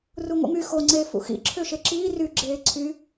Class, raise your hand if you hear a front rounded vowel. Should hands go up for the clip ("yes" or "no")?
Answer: yes